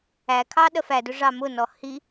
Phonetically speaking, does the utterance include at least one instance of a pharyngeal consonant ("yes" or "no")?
no